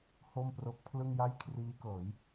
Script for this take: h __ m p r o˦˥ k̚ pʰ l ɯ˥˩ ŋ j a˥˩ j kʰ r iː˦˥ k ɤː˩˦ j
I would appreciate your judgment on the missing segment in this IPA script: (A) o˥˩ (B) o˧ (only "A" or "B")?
A